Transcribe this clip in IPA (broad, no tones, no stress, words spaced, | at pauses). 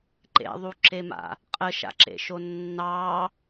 ǃḛðˤuǁema̰ | qʼəʃa̰ǁḛʃo nːɑ